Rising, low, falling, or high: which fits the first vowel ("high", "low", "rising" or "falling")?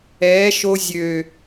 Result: rising